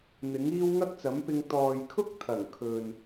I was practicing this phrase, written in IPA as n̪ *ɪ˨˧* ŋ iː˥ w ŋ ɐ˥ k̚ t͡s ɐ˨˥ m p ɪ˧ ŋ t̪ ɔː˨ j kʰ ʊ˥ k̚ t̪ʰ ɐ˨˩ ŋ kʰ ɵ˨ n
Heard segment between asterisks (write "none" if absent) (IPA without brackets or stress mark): ɪ˨˥